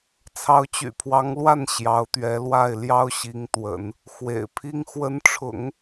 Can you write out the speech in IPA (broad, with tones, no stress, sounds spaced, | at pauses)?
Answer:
t͡sʰ ɑ˧˥ ʊ̯ t͡ɕ y̰˨˩ pʰ w ɑ˧˥ ŋ l w a˥˩ n ɕ j ɑ˧˥ ʊ̯ t̪ ɥ ɛ˧˥ l w a˥˩ ɪ̯ l j ɑ˥ ʊ̯ ɕ i˧˥ ŋ t̪ w ə̰˨˩˦ n | x w ḛ˨˩ ɪ̯ pʰ i˥ ŋ x w ə˧˥ n ʈ͡ʂʰ ʊ̰˨˩˦ ŋ